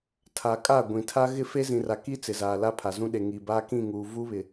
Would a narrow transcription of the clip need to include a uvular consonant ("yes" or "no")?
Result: no